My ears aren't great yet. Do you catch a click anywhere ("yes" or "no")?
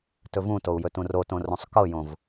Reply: no